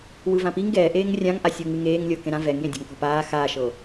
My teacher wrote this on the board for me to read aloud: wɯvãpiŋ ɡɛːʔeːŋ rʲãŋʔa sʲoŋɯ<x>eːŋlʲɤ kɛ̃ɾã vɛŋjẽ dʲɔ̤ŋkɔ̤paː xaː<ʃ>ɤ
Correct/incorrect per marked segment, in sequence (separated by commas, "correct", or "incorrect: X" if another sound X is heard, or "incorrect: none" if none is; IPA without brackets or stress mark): incorrect: ŋ, correct